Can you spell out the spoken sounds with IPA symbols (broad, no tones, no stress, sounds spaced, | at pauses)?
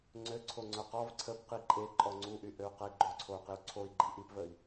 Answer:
ŋ͡ǀ ø ǀʰ o ŋ͡ǀ œ q ɔ v ǀʰ ə p q i ǃʼ e ǃʼ ɔ ŋ͡ǀ u ʔ y ʔ ø u̯ q ɛ i̯ ɡ͡ǃ o ǀʰ o u̯ q i u̯ ǀʰ o i̯ ɡ͡ǃ i ʔ i p v ə i̯